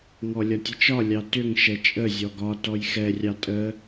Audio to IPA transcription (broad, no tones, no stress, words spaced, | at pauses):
ŋɔlʲɒtʲət͡ʃɒ lʲɑtʏŋ ʃɛt͡ʃʼə zʲɔɡɒ tɔjxɛ rʲɑtʼə